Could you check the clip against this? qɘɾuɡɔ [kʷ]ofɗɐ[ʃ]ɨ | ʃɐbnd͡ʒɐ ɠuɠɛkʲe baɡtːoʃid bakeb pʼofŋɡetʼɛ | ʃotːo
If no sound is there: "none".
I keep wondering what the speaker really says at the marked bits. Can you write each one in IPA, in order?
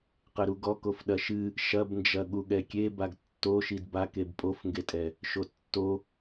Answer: k, ʃ

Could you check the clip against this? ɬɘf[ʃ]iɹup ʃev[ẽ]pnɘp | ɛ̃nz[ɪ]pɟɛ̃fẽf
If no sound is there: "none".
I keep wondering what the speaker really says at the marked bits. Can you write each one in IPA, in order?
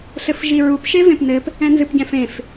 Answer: ʒ, ẽ, ɨ

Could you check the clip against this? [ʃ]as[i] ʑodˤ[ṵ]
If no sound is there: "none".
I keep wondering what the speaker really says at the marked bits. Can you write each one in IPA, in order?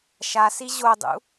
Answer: ʃ, i, ṵ

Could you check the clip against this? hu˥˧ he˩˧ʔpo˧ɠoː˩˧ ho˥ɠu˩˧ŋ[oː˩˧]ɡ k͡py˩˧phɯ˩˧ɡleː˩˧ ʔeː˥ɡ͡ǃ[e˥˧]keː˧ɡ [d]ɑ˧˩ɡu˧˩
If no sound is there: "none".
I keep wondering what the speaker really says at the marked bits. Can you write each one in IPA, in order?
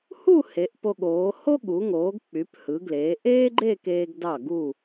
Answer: oː˩˧, e˥˧, d

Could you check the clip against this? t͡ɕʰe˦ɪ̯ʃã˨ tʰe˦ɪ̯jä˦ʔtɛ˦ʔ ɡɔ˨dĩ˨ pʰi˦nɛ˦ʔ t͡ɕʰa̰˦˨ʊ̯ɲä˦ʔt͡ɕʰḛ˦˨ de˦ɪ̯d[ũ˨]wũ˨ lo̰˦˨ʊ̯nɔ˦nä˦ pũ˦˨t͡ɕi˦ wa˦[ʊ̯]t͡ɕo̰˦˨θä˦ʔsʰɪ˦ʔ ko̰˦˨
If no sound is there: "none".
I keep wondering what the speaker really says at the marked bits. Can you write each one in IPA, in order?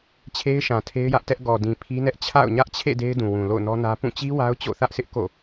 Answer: ũ˨, ʊ̯

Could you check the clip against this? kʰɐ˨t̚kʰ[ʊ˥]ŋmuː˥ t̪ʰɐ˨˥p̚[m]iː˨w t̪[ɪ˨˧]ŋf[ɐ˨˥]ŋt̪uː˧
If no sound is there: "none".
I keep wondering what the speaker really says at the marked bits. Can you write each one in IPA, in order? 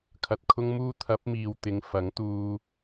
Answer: ʊ˥, m, ɪ˨˧, ɐ˨˥

